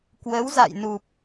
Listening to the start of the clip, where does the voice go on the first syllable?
rising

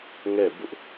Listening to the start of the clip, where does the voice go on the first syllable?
falling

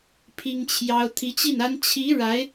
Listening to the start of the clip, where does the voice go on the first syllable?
high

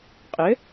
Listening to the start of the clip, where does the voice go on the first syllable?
rising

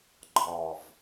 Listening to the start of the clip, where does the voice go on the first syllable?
low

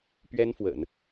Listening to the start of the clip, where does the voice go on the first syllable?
high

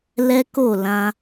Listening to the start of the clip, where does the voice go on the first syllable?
high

